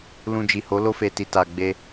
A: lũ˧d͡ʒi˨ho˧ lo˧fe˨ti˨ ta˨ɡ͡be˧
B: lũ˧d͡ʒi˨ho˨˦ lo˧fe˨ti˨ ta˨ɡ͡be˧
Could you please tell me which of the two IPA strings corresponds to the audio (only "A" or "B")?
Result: B